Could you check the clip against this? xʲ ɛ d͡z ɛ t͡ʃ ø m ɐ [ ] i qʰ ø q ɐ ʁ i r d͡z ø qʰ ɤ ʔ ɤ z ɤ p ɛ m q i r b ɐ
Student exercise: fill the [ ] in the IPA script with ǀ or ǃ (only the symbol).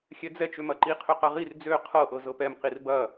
ǃ